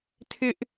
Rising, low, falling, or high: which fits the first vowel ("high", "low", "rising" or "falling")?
high